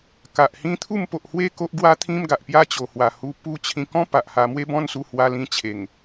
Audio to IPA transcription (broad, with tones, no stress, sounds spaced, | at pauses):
k a˨ ʔ h ĩ˦ t̪ʰ u˥˧ m p o˨ ʔ h w e˥˧ k o˦ ʔ ɡ w a˦ t̪ʰ ĩ˦ m ɡ a˨ ʔ p j a˦ t͡ɕ o˨˩ h w a˨˩ h u˧ p u˦ t͡ɕʰ ĩ˧ k ɔ̃˦ p a˨ ʔ h a˧ m w e˦ b ɔ̃˦ n s u˧ h w a˧ l ĩ˧ t͡ɕʰ e˨˩ ŋ